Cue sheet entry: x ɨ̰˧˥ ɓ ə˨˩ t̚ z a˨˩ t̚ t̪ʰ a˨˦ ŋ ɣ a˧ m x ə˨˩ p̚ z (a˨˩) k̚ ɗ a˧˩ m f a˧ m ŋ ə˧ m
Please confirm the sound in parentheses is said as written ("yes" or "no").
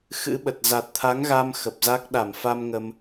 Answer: no